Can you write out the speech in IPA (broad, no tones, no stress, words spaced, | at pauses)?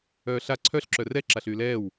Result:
œːɬa ǀʰœɬ ǁœrɛ ǁaɬyːlɛːw